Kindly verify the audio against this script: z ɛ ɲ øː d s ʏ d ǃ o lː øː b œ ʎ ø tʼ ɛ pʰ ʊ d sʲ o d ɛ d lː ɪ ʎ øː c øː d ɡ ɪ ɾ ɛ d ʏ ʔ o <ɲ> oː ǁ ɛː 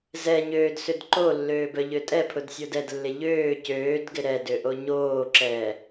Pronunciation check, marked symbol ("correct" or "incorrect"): correct